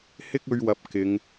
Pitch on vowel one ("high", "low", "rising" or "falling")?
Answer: high